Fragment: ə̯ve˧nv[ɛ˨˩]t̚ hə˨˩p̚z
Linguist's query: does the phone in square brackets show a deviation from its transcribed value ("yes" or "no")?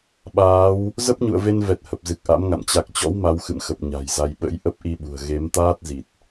no